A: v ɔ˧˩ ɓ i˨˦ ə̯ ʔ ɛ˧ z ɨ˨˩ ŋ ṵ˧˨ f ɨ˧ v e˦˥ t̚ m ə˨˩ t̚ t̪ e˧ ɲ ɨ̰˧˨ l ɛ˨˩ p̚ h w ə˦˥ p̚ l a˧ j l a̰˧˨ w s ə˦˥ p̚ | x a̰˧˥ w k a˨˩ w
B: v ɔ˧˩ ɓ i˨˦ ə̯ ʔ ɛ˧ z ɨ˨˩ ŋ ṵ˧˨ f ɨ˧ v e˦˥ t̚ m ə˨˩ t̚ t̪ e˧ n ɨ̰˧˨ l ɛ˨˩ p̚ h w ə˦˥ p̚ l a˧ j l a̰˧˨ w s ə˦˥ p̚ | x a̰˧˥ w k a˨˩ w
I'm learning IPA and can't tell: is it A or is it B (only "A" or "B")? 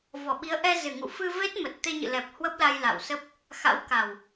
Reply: A